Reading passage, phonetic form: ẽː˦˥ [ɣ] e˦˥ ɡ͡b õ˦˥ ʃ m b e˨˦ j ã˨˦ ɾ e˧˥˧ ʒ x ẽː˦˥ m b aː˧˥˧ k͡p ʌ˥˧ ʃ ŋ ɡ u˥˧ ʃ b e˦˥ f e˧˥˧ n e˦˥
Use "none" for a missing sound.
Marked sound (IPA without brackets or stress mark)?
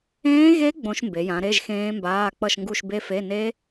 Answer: ɣ